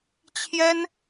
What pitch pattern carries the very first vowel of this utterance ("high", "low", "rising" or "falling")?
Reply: high